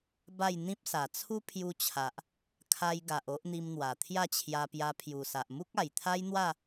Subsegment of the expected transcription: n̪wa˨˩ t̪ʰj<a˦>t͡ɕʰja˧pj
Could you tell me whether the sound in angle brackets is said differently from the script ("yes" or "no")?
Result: yes